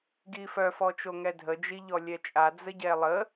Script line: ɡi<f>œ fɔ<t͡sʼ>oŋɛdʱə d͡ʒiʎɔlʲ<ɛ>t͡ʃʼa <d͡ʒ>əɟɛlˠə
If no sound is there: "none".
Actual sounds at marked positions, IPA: f, t͡ʃ, ɛ, d͡z

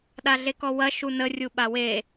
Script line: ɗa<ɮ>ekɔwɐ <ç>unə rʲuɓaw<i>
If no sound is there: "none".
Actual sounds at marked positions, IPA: ɮ, ʃ, e

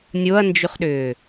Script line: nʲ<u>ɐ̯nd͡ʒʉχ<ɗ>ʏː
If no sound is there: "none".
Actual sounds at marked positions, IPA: o, ɗ

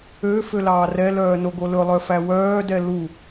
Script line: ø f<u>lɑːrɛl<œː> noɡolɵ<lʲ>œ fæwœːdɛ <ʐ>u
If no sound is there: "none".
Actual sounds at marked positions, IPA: ø, œː, lˠ, l

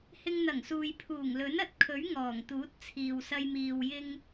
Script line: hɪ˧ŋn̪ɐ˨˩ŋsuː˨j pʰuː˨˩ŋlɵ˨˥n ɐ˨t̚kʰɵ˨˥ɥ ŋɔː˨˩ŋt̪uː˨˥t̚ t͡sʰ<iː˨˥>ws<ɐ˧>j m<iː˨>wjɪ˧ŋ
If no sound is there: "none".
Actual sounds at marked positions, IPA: iː˨, ɐ˧, iː˨

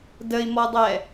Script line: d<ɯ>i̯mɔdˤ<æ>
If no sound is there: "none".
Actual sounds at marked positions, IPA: ə, ɛ

